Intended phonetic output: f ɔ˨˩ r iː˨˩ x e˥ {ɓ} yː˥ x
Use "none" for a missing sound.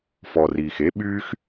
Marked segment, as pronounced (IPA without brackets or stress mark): ɓ